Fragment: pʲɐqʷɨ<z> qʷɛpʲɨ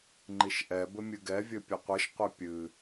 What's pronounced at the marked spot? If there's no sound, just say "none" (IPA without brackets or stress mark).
ʃ